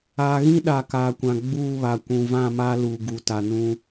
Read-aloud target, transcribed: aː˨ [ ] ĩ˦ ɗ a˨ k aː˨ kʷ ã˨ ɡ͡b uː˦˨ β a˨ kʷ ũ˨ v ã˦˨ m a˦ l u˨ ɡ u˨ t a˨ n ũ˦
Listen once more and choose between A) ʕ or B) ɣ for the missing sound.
B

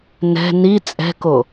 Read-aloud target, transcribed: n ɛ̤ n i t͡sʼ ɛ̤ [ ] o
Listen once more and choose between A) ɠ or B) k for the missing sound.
B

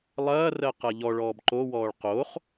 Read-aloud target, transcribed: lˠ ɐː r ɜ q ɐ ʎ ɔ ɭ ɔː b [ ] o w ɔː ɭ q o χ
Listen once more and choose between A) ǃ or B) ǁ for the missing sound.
A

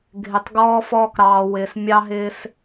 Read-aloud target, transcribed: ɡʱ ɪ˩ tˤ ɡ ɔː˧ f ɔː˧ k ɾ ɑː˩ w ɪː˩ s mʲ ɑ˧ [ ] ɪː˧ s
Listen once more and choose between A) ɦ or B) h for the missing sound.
A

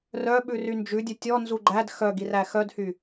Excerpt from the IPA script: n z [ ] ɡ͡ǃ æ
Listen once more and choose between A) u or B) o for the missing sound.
A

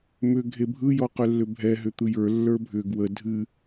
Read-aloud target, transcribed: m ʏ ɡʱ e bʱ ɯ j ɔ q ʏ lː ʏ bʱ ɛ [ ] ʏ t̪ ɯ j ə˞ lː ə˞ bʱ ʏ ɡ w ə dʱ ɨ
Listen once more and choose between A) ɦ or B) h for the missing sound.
A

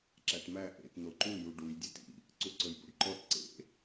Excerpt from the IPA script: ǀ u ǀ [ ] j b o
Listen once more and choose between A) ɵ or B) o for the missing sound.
A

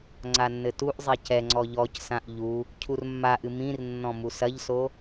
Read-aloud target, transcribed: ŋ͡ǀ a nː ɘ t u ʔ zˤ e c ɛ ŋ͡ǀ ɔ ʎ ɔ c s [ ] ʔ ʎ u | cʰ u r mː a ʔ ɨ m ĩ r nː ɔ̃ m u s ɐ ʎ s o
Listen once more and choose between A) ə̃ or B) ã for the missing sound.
B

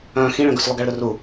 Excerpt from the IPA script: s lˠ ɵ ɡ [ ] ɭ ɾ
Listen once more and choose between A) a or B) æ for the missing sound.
A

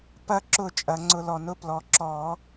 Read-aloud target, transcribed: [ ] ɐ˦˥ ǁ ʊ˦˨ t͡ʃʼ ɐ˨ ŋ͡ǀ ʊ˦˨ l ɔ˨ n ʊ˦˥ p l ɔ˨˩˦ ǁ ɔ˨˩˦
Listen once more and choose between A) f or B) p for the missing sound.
B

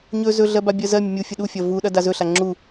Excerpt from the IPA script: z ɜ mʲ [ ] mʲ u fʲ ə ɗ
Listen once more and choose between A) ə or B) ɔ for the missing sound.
A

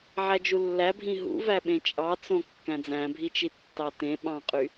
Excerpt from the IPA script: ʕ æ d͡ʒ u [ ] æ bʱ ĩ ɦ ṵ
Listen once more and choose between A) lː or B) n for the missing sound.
A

